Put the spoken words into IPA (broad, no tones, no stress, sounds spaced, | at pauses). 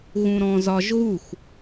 ɣ ũ ɾ ɔ̃ z ɒ ʒ ɣ u x